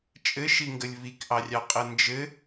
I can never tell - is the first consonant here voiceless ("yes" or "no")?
yes